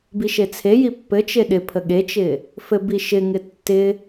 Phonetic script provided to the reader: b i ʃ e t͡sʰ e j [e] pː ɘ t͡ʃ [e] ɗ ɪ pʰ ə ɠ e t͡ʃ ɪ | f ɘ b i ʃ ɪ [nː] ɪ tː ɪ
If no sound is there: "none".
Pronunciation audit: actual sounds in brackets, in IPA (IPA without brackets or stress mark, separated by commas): i, e, ŋ